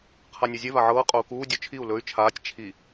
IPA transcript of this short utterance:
qʰ a nʲ ɵ zʲ e v a ʕ ɤː qʼ o u̯ k uː dʲ o t͡ʃʰ i u̯ l ɵ y̯ t͡ʃʰ aː tʲ t͡ʃʰ i

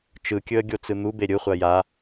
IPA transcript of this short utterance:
t͡ʃ ɯ kʲ ɵ ə̯ ɡʲ o t͡s ɯ n̪ u b e ɾʲ ɯ χʷ a j a

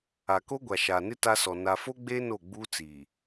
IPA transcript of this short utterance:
a˨ k o˦ ɡʷ a˨ ʃ aː˨ n ɪ˦ t a˦ s ɔ˨ n a˨ f o˦ ɡ͡b eː˦ n o˦˨ ɡ͡b uː˦ t͡s iː˨

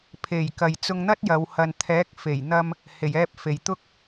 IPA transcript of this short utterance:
pʰ e˨˩ j k ɐ˨ j t͡s ʊ˧ ŋ n̪ ɐ˥ t̚ j ɐ˨˧ w h ɐ˨ n t̪ʰ ɛː˨˥ k̚ f e˨˩ j n̪ ɐ˧ m | h e˨˩ j ɛː˧ p̚ f e˨ j t̪ ʊ˥ k̚

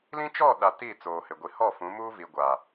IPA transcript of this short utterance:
l ĩ˦ t͡ʃ ɔ˦˨ ɗ a˨ t i˦˨ t͡s oː˨ h ɪ˨ ɡʷ i˨ h ɔ˦˨ f ũ˨˦ m uː˦ v i˨ ɡʷ a˨

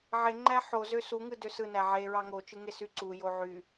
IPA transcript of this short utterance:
ʕ e ŋ͡ǃ æ ħ o z ø s u ŋ ɯ d ø s ɯ n æ ʕ e ɹ ɑ ŋ o t͡ʃ ɯ ŋ e s y ǀ u j o ʕ y

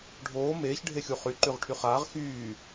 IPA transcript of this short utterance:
ɖʱ oː m eː ç ɖʱ e xʲ u χ y ǃ y ʁ ʈʰ y χ aː ʁ x yː

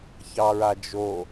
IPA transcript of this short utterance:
ç ɑ ɹ a d͡ʒ o

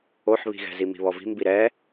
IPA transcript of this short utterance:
o ħ β i̤ ɣ ɛ̤ z i m i̤ β ɔ v i̤ m b i ɾ ɛ

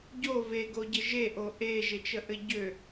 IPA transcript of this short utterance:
ɟ o v e ɡ o ɟ ɘ ʒ e ʔ o ʔ e ʒ e t͡ʃ ə ʔ ɘ ɟ ø

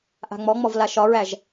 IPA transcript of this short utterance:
ʔ a̤ ŋ͡m ɔ ŋ͡m ɔ v l a ʃ ɒ ɹ æ ʒ

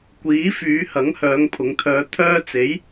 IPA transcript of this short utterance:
kʷ iː˨˥ f yː˨˧ h ɐ˨˥ ŋ h œː˨˧ ŋ pʰ ʊ˨˧ ŋ t̪ʰ œː˧ t̪ʰ œː˧ t͡s e˨˥ j

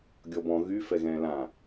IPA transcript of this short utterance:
ɡʲ ɔ b ɔ̃ ɣ y f ɛ ɣ ɛ̃ː l ã

